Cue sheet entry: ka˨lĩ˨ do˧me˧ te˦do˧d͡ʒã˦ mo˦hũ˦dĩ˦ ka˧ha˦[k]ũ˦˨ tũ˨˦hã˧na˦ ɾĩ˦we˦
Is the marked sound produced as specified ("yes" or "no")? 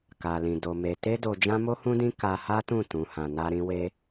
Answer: no